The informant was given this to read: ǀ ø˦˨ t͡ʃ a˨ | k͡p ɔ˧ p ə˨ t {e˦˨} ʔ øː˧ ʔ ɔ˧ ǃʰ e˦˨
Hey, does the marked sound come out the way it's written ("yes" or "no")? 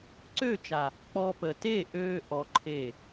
yes